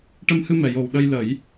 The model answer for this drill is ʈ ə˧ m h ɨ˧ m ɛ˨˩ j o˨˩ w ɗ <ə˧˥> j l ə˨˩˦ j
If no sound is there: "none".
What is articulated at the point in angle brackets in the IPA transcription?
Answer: ə˧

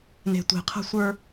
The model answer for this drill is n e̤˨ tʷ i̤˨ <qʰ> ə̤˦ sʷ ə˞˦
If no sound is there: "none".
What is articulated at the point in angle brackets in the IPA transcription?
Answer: qʰ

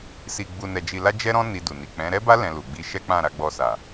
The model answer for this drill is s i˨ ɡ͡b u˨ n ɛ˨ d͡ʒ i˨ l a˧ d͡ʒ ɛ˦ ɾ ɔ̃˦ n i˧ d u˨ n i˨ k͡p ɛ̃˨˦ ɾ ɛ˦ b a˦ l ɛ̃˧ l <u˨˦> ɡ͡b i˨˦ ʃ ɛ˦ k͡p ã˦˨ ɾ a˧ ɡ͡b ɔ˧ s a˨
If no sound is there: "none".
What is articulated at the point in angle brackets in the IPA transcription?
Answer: u˨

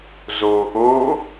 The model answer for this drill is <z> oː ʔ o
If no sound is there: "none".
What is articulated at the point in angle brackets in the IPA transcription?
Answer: z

